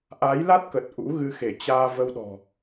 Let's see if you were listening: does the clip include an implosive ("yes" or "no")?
yes